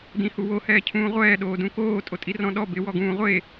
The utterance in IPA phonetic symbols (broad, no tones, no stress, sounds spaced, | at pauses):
d ĩ h u w o h ɛː cʰ ũː ʁʷ ɛː ɗ oː d ũ k oː tʼ o tʼ i r ɔ̃ ɗ ɔ b ɪ w ɔ ɡ ũː ʁʷ e